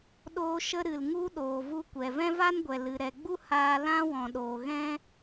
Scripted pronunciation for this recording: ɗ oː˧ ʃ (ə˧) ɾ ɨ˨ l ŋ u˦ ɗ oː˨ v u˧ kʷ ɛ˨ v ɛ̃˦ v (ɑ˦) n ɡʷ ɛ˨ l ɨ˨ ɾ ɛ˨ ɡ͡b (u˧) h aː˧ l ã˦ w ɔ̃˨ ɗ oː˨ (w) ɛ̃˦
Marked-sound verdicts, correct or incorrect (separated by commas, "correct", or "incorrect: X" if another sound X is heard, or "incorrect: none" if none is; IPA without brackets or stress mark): correct, incorrect: a˦, incorrect: u˦, incorrect: ɣ